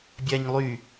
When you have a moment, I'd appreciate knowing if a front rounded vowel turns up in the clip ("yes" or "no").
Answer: yes